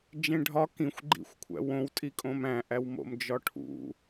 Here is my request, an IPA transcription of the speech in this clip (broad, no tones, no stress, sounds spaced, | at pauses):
d͡ʒ ẽ ɖʱ ɒ k ĩ xʷ ɡ͡ǃ ḭ xʷ kʷʰ æ̰ w õ w tʼ i kʼ õ m æ̃ ʔ æ w m o̰ m d͡ʒ ɒ ʈʰ ṵ